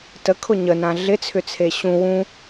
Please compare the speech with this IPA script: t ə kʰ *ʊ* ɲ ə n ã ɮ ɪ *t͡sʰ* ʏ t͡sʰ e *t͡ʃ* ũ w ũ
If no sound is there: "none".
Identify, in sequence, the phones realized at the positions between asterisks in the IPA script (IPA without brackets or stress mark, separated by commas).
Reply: ʊ, t͡sʰ, ɕ